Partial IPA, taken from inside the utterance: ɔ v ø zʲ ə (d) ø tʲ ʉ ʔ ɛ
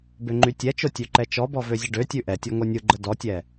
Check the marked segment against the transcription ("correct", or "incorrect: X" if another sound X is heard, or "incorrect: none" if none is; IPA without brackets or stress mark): incorrect: ɖ